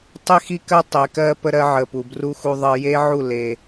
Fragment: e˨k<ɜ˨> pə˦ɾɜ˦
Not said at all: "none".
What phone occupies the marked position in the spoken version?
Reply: ɜ˦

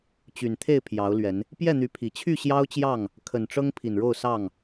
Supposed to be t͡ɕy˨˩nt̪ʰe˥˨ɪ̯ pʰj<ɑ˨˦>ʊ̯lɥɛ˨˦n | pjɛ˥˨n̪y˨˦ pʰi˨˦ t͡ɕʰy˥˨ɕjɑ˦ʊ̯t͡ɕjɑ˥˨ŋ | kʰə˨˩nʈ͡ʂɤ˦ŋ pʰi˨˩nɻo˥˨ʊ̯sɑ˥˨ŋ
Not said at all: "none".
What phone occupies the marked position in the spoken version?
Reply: ɑ˨˦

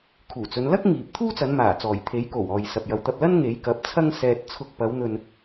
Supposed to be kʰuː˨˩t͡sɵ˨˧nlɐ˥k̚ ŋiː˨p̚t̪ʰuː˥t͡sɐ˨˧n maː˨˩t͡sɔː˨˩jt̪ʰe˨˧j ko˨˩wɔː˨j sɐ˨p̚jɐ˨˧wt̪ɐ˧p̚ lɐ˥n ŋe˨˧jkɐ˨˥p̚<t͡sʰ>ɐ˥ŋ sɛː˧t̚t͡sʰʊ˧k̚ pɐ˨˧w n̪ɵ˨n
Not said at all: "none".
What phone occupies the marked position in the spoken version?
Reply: t͡sʰ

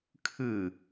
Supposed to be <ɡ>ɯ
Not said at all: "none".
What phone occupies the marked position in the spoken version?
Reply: kʰ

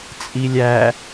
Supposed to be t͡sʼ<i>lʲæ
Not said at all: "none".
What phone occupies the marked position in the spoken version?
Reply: i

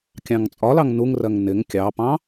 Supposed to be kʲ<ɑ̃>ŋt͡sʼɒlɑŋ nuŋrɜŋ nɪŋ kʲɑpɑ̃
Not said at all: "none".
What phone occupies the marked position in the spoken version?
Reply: ɑ̃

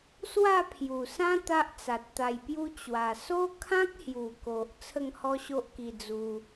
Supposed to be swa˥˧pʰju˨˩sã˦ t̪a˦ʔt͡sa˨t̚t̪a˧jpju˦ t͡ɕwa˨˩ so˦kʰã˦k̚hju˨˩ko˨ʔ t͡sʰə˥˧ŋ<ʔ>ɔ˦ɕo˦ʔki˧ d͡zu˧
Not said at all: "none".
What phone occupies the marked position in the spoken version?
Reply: h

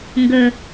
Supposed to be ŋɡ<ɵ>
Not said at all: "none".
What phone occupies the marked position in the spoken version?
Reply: ɵ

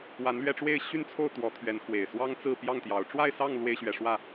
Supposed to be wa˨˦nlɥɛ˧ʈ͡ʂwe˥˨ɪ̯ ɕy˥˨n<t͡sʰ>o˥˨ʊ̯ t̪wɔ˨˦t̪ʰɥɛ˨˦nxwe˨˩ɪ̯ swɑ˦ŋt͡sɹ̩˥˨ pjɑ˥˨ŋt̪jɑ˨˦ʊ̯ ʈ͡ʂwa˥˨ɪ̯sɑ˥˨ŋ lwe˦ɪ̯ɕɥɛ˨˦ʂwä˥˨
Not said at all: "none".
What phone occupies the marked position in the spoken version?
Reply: t͡sʰ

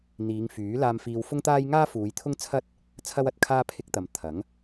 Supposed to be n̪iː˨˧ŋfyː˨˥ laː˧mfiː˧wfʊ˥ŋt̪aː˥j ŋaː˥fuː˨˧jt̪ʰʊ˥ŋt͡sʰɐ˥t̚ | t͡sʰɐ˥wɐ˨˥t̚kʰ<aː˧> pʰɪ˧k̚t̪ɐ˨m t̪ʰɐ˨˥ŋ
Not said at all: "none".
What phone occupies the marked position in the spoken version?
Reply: aː˥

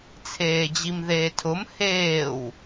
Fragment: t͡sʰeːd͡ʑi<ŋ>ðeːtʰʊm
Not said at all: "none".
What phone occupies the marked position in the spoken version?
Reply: m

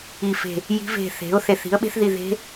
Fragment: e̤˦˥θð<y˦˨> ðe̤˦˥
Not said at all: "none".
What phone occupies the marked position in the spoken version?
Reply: i˦˨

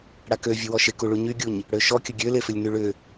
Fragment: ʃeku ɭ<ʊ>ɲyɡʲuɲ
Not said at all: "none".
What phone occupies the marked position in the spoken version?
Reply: u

